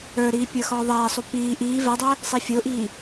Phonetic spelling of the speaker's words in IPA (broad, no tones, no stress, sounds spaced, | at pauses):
ə˞ ɾ iː pʲ ə˞ x ɔː ðˤ ɛː sˤ u p iː ʔ iː v ɛ dˤ ɛ | sˤ i fʲ ʊː ʔ iː